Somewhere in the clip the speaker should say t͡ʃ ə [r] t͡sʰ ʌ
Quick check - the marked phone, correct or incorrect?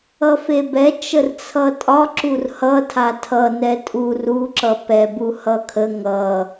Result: correct